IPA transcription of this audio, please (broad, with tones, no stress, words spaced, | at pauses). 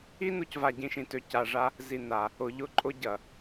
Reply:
i˦ nu˦c va˨ɟĩ˨ʃĩ˨ tø˨ ca˨ʐa˦ | zi˨ na˨ | ʊ˨ʎʊ˦ǃʼʊ˦ ɟɐ˨